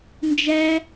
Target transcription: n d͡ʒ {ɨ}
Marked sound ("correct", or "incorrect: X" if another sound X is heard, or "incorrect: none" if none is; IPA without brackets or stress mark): incorrect: ɛ